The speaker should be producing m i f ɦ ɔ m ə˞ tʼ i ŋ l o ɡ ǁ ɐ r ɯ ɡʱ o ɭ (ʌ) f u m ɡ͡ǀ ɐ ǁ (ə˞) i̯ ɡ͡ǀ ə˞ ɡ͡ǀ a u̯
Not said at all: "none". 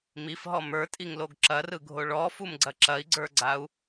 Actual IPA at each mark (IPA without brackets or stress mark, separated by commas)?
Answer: ɔ, ɐ